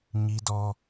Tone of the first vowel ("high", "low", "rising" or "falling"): high